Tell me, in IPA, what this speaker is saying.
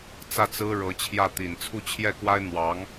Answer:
t͡s ä˥˩ t͡s ɹ̩˥ ɻ ɤ˧˥ t͡ɕʰ j ä˥˩ t̪ i˨˩ n t͡sʰ u˥˧ t͡ɕʰ j ɛ˥˩ k w a˥ ɪ̯ n̪ w ɑ˧˥ ŋ

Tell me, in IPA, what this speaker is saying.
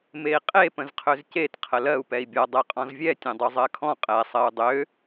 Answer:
m e i̯ qʼ e p ə̃ z qʰ ø z c e t qʰ ə l ɜ u̯ p ɛ i̯ bʲ ɔ dˤ ɛ qʼ ɔ̃ z vʲ ɛ tʲ ẽ dˤ ʉ zˤ ɜ kʰ ɔ̃ qʼ ɛ sˤ ɜ u̯ dˤ ø

